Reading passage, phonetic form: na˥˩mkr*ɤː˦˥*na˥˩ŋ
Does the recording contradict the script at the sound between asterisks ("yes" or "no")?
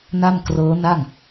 no